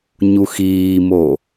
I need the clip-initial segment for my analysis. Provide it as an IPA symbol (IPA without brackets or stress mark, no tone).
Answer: ɲ